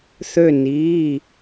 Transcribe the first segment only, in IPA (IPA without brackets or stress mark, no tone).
θ